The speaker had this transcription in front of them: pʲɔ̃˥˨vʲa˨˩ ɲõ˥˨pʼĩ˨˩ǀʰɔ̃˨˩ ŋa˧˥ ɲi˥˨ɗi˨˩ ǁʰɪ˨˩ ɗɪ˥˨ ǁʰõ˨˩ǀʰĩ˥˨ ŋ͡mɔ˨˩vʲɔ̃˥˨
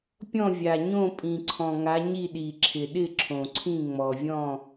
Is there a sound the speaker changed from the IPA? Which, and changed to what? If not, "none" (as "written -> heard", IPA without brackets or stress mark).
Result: none